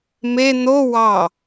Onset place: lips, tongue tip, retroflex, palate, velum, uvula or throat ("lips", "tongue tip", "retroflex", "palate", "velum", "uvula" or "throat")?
lips